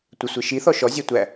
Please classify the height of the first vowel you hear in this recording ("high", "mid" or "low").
mid